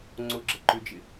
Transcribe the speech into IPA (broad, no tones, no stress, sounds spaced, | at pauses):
ŋ͡ǀ ʊ ɡ͡ǁ ə ǃ ʏ d͡ʒ ɪ